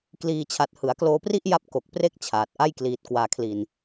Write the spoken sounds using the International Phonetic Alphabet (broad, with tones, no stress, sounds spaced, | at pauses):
k l iː˧ t͡ɕʰ a˨˩ t̚ h ɯ˩˦ a̯ k l oː˧ p r i˥˩ ʔ j a˦˥ p̚ k o˨˩ k̚ p r e˦˥ k̚ t͡ɕʰ aː˨˩ t̚ ʔ a˥˩ j k l iː˨˩ t̚ k w aː˧ kʰ l i˧ n